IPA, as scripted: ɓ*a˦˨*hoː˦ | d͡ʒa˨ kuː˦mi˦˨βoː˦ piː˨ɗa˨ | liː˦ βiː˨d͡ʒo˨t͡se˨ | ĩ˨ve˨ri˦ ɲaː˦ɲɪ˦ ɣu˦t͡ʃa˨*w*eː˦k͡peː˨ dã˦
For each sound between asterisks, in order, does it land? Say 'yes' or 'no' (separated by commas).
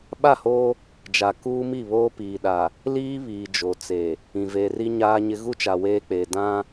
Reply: yes, yes